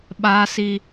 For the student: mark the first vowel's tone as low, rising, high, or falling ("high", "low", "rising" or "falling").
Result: high